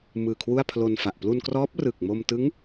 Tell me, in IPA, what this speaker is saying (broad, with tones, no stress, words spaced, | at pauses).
mɯː˨˩kʰwu˥˩a̯pʰlo˧nfa˨˩ʔ plu˧nkrɔː˦˥p̚ rɯ˨˩k̚mo˧m tɯ˦˥ŋ